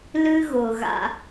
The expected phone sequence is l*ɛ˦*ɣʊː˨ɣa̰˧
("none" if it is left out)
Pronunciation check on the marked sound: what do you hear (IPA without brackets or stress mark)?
ɨ˦